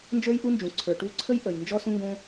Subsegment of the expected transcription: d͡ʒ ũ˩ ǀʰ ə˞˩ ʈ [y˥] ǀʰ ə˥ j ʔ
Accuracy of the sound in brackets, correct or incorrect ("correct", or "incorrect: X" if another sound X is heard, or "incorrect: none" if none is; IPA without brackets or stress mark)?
incorrect: u˥